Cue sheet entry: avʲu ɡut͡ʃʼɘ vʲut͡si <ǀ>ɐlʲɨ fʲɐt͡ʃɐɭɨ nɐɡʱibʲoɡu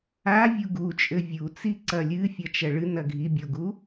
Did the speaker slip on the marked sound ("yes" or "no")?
no